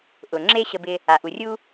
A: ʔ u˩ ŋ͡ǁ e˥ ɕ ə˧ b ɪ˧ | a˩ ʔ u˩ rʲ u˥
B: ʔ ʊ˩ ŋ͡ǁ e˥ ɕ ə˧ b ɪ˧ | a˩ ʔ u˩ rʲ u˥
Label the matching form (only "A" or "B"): B